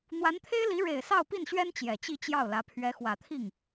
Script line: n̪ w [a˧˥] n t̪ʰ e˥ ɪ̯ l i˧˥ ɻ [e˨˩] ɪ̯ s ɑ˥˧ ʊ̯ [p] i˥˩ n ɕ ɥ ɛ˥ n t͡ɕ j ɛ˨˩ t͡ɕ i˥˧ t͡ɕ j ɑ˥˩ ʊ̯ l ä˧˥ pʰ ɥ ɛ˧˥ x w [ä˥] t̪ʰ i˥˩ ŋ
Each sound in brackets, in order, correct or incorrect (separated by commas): correct, correct, correct, incorrect